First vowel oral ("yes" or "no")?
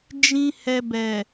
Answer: no